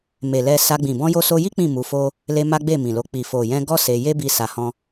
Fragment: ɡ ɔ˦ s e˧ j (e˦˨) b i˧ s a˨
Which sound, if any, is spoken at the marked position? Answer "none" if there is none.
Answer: e˦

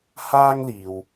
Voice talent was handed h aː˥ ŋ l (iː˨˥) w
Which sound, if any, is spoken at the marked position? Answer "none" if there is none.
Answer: iː˨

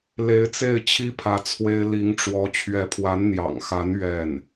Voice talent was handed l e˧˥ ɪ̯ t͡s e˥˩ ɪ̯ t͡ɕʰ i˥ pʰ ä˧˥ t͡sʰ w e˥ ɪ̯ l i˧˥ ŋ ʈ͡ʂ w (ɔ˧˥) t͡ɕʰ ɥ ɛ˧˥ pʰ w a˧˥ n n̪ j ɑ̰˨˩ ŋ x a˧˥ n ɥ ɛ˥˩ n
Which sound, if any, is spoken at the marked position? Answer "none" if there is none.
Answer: ɔ˧˥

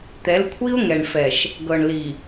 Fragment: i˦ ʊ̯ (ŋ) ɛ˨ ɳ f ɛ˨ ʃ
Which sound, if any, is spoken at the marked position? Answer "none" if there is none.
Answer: ŋ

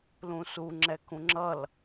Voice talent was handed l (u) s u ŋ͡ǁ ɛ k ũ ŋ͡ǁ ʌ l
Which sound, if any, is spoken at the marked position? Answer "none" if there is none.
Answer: ũ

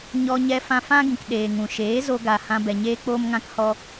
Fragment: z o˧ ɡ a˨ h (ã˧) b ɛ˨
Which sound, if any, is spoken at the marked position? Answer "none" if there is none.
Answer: ã˧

